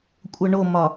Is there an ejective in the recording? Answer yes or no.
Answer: yes